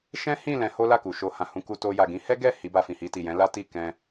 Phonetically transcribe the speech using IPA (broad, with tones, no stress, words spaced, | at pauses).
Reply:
ʃɛ̃˦hĩ˦˨ lɛ̃˨˦ho˦ la˦˨ku˨ʃo˧ hã˨hũ˧ ku˧ to˧ ja˨ɡĩ˨˦hɛ˦ɡɛ˦˨ hi˨˦ba˧ fĩ˨hi˧ti˨ jɛ̃˨˦la˦ti˦˨ kɛ̃˧